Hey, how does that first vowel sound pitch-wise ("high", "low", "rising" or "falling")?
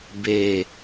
low